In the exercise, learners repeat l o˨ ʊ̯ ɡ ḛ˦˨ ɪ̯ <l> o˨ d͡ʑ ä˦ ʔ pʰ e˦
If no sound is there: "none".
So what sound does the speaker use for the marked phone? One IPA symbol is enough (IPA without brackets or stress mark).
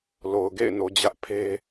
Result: n